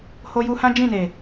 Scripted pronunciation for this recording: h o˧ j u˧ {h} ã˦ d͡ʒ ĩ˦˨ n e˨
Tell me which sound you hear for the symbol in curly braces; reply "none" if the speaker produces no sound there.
h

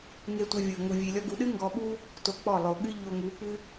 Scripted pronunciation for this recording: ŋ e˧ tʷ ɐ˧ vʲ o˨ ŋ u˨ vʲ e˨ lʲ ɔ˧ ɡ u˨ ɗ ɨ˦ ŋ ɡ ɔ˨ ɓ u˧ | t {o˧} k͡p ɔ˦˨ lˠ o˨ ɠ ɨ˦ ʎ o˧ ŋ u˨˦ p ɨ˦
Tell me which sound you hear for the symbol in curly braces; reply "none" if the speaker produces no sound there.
o˧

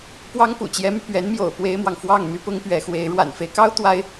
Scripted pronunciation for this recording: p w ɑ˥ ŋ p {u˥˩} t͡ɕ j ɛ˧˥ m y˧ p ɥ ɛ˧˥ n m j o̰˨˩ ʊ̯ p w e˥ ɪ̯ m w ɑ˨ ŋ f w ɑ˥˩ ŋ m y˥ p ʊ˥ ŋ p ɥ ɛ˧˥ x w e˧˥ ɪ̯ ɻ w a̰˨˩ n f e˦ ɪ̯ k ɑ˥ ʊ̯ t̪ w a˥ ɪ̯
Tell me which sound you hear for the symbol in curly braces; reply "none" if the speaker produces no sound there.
ṵ˨˩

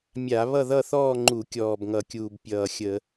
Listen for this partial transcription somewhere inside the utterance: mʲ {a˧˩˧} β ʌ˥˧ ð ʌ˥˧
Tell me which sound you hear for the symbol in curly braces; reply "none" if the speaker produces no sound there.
a˧˩˧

